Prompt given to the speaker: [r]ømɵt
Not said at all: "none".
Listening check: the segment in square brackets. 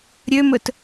ɾʲ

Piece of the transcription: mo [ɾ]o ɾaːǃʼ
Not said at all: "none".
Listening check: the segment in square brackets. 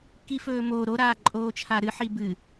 ɾ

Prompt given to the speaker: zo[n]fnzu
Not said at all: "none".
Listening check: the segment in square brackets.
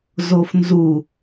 none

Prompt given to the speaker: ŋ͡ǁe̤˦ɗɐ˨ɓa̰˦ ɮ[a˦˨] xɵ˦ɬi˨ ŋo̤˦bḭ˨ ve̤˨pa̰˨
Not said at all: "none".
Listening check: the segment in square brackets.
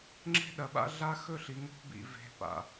a˦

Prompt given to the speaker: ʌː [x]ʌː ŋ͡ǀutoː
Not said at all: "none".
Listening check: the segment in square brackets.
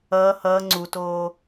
h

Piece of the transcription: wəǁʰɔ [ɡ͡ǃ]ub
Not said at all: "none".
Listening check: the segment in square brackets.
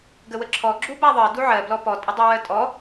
ɡ͡ǁ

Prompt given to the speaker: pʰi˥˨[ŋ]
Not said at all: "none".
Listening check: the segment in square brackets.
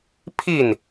n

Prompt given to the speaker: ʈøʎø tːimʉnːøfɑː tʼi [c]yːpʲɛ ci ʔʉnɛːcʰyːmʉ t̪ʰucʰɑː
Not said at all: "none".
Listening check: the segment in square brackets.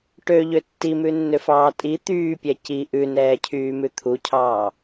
t̪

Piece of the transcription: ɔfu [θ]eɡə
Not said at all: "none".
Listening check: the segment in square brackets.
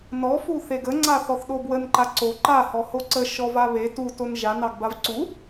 θ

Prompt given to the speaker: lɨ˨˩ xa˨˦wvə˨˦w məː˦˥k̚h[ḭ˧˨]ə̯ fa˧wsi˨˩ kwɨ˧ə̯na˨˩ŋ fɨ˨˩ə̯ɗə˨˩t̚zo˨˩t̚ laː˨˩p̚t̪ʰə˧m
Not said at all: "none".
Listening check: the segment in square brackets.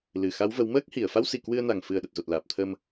i˧˩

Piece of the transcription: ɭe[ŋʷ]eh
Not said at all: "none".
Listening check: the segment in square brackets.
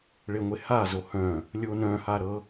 ŋʷ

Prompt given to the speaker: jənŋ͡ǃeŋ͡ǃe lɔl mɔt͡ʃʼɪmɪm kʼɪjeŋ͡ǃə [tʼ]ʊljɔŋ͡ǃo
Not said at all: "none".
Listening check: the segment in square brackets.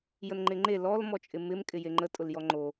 tʼ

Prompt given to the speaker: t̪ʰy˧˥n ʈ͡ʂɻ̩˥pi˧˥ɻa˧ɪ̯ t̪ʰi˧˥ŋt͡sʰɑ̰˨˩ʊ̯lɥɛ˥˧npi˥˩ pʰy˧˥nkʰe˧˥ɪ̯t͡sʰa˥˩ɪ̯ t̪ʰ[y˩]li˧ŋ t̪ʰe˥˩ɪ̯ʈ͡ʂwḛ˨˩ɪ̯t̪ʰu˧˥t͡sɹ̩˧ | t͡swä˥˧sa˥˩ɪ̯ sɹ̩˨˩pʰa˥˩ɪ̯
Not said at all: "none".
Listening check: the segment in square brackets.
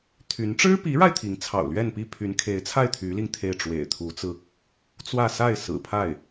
y˧˥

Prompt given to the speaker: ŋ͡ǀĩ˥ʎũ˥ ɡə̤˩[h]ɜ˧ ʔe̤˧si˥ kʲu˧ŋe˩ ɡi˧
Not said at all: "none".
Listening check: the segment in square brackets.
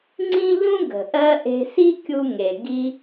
ʔ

